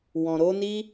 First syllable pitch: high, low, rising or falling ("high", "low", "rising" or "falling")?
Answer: low